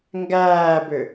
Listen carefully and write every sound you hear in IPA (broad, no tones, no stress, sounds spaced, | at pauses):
ŋ ɡ æː b ʏ